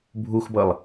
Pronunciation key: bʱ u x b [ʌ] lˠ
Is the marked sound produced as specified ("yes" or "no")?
yes